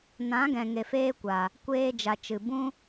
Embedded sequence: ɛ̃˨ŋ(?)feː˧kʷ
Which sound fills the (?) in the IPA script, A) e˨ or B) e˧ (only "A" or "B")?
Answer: A